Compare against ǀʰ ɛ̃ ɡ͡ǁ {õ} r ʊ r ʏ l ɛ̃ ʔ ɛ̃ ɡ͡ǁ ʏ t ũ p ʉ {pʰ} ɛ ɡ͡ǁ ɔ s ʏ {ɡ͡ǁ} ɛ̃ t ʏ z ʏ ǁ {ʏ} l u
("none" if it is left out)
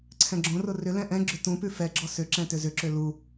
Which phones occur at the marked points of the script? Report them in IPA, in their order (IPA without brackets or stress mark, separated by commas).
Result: õ, f, ǁ, ʏ